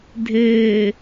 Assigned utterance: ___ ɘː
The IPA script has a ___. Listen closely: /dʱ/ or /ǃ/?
dʱ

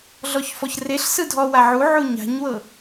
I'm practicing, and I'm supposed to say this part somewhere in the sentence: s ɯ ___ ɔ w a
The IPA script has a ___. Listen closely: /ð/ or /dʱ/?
dʱ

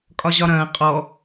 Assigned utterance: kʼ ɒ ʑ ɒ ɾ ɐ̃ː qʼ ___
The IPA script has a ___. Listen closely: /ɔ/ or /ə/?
ɔ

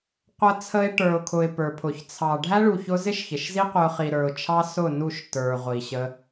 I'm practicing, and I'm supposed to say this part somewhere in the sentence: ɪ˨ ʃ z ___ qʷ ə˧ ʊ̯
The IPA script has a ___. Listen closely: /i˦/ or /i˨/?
i˦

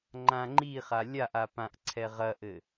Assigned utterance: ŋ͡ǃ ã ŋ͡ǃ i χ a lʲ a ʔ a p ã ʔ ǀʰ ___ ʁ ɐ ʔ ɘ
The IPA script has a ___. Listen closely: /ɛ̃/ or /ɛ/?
ɛ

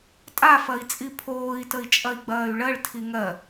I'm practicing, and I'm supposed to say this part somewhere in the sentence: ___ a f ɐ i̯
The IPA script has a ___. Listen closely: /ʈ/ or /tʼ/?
tʼ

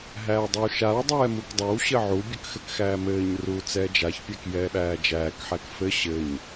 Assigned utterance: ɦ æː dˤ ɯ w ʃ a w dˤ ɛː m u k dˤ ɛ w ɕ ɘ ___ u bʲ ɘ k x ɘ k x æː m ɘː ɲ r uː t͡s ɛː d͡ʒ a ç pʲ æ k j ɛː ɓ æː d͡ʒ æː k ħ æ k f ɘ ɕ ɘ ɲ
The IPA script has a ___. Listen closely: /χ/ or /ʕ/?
ʕ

